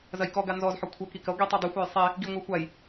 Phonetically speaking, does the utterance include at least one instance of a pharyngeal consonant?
yes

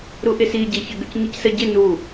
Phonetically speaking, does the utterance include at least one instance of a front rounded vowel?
yes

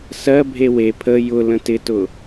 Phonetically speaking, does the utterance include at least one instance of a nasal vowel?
yes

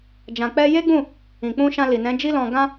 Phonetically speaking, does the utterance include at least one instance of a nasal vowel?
yes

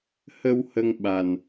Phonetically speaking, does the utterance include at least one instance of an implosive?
yes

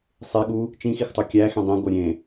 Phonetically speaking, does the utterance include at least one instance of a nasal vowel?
yes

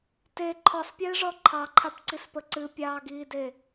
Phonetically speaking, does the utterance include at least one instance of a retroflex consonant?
yes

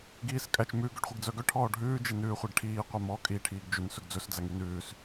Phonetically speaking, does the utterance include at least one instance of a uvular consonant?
yes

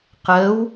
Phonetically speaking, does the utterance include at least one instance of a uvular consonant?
yes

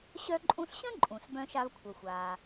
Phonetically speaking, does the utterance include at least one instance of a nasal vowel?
yes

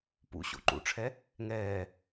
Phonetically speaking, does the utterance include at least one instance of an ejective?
no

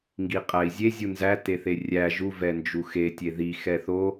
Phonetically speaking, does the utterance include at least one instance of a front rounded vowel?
no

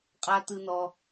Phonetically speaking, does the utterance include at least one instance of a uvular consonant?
yes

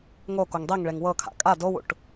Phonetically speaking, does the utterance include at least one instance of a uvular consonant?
no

